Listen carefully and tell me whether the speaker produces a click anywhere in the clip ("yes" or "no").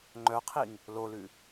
yes